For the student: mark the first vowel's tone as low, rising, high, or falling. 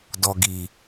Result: low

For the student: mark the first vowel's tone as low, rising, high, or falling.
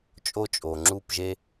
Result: high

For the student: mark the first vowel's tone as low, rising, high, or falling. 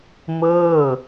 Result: falling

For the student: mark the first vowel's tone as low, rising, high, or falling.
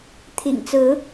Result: low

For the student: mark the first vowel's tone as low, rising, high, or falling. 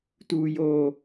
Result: high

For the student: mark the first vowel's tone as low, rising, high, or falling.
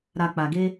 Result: low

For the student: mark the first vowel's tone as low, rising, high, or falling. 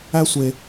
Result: high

